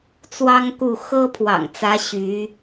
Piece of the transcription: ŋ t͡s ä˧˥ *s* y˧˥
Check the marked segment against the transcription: incorrect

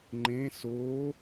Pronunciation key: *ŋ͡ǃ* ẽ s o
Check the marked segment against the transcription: correct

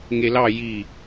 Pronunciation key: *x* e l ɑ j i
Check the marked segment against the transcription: incorrect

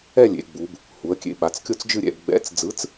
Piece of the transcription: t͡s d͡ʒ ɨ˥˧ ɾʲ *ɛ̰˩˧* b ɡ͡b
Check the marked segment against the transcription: correct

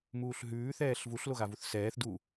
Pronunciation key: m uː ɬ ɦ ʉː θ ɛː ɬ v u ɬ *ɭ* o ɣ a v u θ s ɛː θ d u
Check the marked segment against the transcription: incorrect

